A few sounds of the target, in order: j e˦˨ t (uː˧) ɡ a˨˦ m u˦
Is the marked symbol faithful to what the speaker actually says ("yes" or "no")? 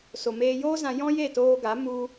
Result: no